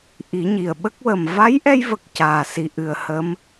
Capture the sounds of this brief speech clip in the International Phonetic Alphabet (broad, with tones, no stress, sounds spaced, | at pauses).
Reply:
ʔ i˨˩˦ ɲ i˨˩ ə̯ ɓ ə˦˥ k̚ w ə˨˩ m v a˧˥ j ʔ ɛ˧ j v ə˨˩ k̚ c aː˨˩ s i˨˩ ʔ ɨ˨˩ ə̯ h ə˧˥ m